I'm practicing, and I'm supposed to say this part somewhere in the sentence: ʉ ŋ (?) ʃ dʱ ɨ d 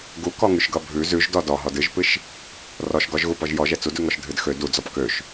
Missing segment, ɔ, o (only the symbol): ɔ